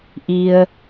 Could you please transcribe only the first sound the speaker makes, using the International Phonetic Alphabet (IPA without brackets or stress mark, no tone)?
ʔ